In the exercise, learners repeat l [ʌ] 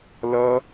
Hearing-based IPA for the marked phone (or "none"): ʌ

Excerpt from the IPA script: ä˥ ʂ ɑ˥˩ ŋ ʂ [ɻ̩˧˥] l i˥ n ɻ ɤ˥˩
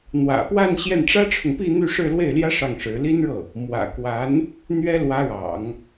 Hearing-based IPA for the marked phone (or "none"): ɻ̩˧˥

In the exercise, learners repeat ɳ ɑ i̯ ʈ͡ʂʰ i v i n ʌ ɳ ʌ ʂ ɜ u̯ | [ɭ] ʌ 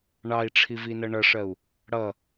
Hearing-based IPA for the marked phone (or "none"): ɽ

